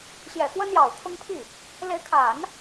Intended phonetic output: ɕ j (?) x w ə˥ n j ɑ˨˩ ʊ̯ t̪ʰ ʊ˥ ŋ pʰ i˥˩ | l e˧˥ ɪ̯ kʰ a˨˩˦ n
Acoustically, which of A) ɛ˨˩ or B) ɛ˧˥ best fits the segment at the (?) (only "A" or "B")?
A